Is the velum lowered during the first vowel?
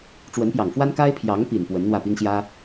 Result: no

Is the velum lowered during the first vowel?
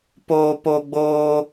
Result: no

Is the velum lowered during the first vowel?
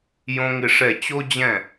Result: yes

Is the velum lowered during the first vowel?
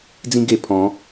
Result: yes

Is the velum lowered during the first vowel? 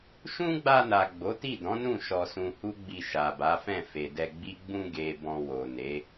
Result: yes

